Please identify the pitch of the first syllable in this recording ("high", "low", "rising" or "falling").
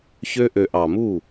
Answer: high